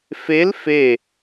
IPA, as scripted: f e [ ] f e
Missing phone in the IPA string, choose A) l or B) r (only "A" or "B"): A